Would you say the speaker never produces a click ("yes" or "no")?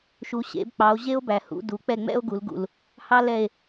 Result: yes